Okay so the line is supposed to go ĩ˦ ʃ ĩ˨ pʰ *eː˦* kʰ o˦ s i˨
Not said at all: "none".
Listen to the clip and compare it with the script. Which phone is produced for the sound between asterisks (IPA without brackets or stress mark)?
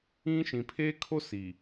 eː˦